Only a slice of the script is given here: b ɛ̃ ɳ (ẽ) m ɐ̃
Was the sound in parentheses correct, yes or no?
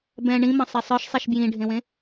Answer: no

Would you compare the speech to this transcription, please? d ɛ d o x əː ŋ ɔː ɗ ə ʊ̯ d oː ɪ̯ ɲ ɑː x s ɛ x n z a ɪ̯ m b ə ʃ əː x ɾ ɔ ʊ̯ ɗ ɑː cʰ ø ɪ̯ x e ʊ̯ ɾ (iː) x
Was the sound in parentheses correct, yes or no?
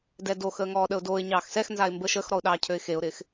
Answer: no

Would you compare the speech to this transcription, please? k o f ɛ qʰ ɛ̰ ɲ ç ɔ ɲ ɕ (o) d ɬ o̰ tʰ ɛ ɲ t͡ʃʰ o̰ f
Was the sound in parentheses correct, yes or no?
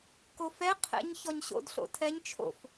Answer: no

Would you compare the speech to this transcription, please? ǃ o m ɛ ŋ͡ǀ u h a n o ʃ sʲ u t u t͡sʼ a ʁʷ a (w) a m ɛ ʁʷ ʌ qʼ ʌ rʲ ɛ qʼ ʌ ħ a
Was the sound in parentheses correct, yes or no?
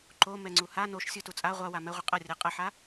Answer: yes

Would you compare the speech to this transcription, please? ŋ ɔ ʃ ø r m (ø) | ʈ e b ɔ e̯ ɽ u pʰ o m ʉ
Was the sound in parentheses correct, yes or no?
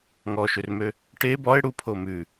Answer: yes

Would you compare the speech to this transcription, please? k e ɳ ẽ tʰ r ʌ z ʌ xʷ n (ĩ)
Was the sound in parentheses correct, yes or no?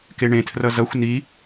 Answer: no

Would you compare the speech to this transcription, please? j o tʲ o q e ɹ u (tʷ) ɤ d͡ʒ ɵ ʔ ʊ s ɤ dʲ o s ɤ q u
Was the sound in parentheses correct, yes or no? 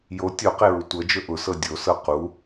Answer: yes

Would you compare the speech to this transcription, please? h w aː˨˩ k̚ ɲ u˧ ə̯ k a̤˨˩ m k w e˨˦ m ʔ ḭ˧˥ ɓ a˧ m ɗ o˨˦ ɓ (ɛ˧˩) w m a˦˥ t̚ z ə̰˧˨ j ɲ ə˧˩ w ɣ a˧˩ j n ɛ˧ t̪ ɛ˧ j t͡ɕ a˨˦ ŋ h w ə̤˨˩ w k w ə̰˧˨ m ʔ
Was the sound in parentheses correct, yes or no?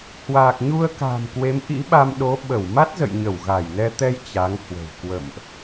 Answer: no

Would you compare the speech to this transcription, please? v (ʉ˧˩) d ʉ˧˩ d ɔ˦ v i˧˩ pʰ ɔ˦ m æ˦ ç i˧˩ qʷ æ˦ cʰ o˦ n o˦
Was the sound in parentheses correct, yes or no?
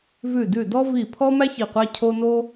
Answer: yes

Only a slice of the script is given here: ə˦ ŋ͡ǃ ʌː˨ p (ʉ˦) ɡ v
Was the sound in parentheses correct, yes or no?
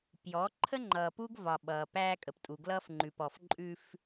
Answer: no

